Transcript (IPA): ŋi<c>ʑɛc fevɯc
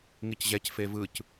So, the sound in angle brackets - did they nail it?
yes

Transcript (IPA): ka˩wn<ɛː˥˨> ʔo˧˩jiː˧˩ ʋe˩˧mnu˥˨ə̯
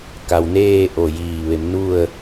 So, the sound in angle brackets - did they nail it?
no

